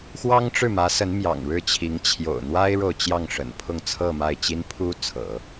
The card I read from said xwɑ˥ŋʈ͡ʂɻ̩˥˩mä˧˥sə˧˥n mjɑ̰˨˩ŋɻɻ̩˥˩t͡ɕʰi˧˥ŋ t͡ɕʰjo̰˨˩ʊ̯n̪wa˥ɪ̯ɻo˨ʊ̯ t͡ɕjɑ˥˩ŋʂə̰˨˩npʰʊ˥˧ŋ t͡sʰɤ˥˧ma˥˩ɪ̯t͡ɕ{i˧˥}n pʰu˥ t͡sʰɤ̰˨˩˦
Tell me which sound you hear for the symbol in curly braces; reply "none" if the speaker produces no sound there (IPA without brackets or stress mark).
i˥